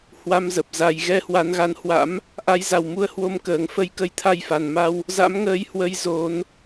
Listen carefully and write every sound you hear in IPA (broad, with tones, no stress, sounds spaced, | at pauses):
h w a˧ m z ə˨˩ p̚ z a˨˩ j ɣ ɛ˧ h w a˨˦ n ɣ a˨˦ n h w a̰˧˥ m | ʔ a˨˦ j z a˨˩ w m u˧ ə̯ h w o˧ m k əː˨˩ ŋ f ə˧ j k ə˧ j t̪ʰ a˧ j f a˨˩ n m a˧ w | z a̰˧˥ m ŋ əː˨˦ j h w ə˨˦ j z o˨˦ n